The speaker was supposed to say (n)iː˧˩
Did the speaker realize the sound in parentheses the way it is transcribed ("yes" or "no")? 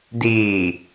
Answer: no